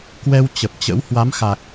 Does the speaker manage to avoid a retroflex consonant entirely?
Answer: yes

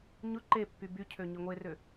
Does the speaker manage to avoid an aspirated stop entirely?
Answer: no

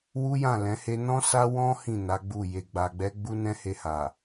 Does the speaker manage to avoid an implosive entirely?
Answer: yes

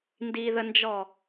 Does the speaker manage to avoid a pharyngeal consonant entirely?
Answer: yes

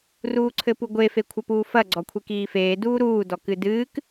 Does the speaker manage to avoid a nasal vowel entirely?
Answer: yes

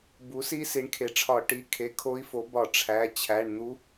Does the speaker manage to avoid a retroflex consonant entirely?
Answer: no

